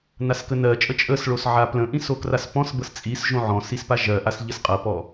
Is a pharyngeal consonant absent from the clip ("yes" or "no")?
no